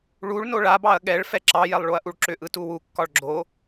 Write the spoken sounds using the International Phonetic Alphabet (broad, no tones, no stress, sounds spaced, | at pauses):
ɭ u ɭ n o ɭ a b ɑ ɐ̯ ɠ ɛ ɭ f ɛ ǁ ɑ j ɛ lˠ ɭ o ɐ̯ ʔ u ɭ ǁ ʏ ʔ ɯ t u w u kː ɒ ɭ ɡ͡ǁ o